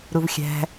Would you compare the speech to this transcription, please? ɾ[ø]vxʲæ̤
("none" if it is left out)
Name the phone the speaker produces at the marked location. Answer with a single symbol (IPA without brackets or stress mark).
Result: u